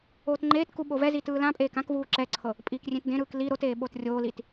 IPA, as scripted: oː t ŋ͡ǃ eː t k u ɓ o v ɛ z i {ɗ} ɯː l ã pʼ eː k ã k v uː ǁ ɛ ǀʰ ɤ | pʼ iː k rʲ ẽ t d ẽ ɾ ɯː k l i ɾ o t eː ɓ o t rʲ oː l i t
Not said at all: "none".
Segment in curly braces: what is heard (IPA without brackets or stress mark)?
t